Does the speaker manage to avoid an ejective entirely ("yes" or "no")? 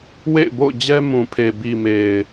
yes